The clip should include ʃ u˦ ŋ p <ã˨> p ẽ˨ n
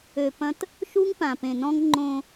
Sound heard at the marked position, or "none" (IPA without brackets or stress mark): ã˨